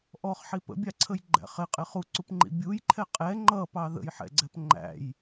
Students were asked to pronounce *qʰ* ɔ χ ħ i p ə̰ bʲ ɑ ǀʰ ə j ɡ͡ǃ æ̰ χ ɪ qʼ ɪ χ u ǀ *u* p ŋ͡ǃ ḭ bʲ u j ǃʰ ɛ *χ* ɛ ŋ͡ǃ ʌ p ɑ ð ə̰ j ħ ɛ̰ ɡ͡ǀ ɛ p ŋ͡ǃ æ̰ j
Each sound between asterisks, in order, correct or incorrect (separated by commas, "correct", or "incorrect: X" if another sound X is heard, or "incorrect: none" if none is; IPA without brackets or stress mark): incorrect: ʔ, correct, incorrect: qʼ